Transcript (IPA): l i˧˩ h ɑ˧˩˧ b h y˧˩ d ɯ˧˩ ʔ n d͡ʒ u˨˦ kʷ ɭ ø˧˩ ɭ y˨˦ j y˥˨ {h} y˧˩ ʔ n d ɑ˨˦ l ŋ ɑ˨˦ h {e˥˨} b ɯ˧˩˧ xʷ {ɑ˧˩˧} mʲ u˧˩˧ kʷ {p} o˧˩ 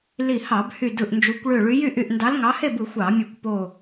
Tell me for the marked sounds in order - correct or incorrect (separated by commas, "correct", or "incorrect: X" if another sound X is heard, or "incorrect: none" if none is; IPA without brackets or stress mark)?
incorrect: ʔ, correct, correct, correct